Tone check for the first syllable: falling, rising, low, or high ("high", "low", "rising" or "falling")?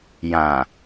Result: low